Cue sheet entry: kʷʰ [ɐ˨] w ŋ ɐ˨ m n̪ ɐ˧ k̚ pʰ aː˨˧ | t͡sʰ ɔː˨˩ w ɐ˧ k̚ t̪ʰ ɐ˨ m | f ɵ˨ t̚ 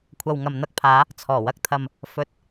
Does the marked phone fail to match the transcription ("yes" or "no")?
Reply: no